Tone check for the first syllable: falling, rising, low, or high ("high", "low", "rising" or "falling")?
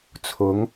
rising